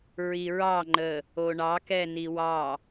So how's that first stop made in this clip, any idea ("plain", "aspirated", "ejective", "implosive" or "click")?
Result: click